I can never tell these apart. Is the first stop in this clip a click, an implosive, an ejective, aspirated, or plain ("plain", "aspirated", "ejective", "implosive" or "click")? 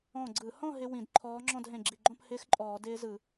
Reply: click